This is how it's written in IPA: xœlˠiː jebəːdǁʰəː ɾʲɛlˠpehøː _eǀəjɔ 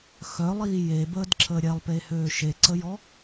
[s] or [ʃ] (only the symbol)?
ʃ